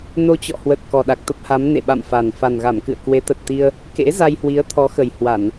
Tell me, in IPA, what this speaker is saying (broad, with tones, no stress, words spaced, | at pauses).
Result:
no˧t͡ɕɔ̰˧˨hwə˨˩t̚ kɔ˨˩ɗa˨˩k̚t̪ə˦˥p̚ha˨˦m nḛ˧˨ɓa̰˧˨mfa˨˩n fa˨˩nɣa˧˩mkɨ̰˧˨ə̯ kwe˨˦t̪ə˨˩t̚t̪i˧ə̯ | kḛ˧˥ za˧jhwi˨˦ə̯ t̪ʰɔ˨˦xə˨˩j hwa˧˩˨n